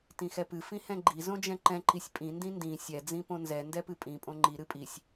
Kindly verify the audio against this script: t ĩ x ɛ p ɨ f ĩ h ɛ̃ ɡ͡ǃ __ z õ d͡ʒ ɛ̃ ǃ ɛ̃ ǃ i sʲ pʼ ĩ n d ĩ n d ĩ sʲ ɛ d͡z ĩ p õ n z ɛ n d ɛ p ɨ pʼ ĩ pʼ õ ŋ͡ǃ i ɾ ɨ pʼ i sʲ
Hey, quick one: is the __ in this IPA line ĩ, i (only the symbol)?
i